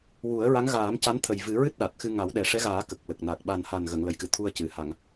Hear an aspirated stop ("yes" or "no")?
yes